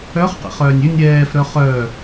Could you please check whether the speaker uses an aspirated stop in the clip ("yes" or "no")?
no